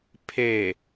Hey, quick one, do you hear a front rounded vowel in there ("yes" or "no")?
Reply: no